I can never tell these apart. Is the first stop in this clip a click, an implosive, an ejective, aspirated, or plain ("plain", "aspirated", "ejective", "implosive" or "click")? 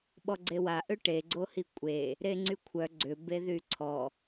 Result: implosive